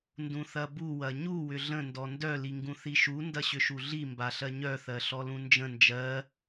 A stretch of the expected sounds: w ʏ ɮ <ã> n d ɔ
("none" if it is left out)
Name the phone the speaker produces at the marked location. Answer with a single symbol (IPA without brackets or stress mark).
ə̃